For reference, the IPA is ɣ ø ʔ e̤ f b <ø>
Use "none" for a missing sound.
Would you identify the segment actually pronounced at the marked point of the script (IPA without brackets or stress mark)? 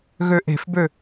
ø